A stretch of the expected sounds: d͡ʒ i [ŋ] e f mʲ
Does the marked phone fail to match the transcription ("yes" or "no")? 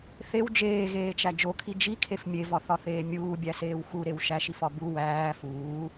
yes